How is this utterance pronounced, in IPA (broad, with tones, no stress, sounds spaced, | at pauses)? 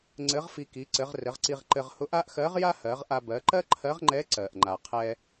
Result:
ŋ͡ǀ ɘ˧˥ ʁ f i˧ k i˩˧ ǀ ɘ˩˧ ʁ r ɘ˩˧ ʁ ǀ i˧ ʁ ǃ ɘ˧ ʁ h ʊ˧˥ ʔ a˥ ʔ x ɜ˧˥ ʁ j a˥ h ɜ˩˧ ʁ ʔ a˧ b ɜ˩˧ ǃ ɜ˥ ǃʰ ɜ˧˥ ʁ ŋ͡ǃ ɛ˧˥ ǀ ɜ˩ ʔ ŋ͡ǃ a˩ qʰ ɛ˧